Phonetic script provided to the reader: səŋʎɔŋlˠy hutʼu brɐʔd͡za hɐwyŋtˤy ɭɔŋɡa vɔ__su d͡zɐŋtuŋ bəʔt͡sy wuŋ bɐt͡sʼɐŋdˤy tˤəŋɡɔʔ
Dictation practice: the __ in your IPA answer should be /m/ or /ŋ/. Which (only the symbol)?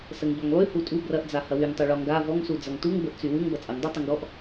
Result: ŋ